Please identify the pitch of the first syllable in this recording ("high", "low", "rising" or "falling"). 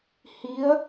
rising